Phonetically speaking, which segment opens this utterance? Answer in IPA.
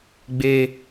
ɡ͡b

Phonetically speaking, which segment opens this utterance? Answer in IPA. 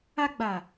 a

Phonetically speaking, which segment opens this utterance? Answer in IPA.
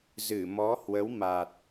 z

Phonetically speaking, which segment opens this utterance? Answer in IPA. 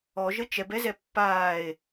ɔ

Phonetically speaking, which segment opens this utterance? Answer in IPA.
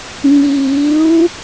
n̪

